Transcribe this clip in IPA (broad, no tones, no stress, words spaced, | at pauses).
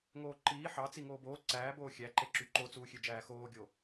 ŋoːǃiː ħɑt͡si ŋoːboː ǀæːboː xʲæǃeǁy ǃot͡suːxʲød͡ʒæː xoːɡʲo